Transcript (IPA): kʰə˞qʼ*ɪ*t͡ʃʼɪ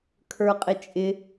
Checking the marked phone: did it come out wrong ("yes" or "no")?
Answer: no